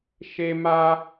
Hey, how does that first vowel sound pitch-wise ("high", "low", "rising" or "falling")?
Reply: high